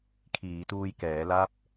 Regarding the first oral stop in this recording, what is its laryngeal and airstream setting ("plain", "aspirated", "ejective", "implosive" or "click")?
aspirated